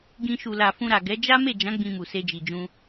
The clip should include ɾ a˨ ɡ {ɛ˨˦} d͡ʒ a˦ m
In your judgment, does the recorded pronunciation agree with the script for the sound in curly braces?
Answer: yes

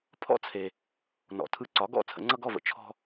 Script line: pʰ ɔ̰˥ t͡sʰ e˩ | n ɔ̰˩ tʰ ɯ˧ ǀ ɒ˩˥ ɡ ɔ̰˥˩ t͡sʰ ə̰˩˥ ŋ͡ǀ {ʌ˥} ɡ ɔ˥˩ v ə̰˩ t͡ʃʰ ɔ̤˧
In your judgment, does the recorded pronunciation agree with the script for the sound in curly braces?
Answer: yes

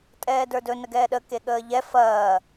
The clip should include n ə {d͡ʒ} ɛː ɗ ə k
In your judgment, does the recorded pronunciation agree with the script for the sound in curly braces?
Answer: no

